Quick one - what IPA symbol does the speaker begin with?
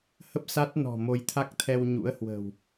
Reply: h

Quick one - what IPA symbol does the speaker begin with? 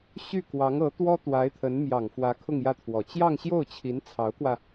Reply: ɕ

